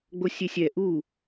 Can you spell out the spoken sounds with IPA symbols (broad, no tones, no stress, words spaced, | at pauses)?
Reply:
ɡ͡bosʲesʲɛ ʔu